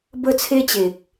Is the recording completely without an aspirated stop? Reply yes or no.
no